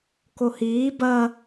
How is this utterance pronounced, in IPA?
k o h iː b ɐ

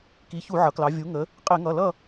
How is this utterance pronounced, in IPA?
k i˩˧ ç u˧˩˧ ʕ ʌ˩˧ k l ɑ˩˧ vʲ u˩˧ ŋ ə˩˧ | qʼ ɪ˧˩˧ ŋ ʌ˩˧˩ l ʌ˥˨

